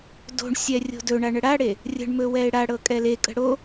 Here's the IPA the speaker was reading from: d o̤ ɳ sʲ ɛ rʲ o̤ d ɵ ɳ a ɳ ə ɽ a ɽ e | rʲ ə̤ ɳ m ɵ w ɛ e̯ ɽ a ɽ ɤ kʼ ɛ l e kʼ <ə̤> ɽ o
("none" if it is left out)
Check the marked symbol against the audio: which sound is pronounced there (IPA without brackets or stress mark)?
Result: ə̤